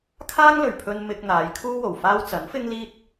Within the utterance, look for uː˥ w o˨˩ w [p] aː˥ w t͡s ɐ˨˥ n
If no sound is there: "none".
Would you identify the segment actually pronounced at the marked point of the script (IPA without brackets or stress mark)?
f